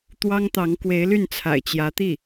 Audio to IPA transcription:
t̪wɑ˥ŋt̪ɑ˧˥ŋkwe˧˥ɪ̯ly˥˩n t͡sʰa̰˨˩ɪ̯t͡ɕjä˧˥t̪i˥˩

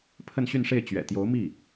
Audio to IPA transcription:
pʰə˥˧nɕy˥˧nʂe˥˩ɪ̯ t͡ɕɥɛ̰˨˩t̪jo˧˥ʊ̯mi˥˩

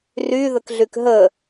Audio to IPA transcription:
ry ðəkɮykɦə

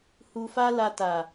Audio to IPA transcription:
hu˧fa˦la˧ ta˨

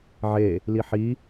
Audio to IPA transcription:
ʕe | liħi

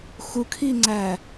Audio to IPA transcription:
xukʰiŋ͡ǀæ

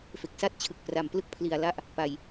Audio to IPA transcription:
fe˨˩k̚sa˥˩t̚t͡ɕʰɯ˨˩k̚ pra˨˩mplɯ˥˩k̚pʰli˨˩a̯la˥˩ʔ | pa˨˩j

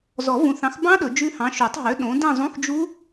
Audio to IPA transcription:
zɔ˨˩˦vũ˨θɑ̃˨˥xbɑ̃˦˥ ɗɵ˨˩˦d͡ʒʉ˦˥hɑ̃˨˥ ʃu˨˩˦tˤɦø˨˥ ɗõ˨˥ dĩ˦˨zˤũ˧˥˧xd͡ʒu˦˥

